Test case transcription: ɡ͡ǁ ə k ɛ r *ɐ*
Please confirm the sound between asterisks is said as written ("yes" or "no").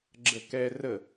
no